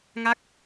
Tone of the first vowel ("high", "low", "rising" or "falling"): falling